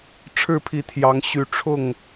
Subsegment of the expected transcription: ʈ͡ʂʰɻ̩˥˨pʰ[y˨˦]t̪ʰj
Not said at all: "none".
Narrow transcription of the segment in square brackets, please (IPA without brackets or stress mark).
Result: i˨˦